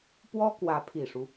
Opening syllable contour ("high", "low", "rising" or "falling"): high